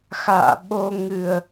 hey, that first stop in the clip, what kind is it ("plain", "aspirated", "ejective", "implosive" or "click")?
implosive